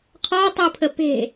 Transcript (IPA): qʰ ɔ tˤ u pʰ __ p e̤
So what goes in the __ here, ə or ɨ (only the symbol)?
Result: ə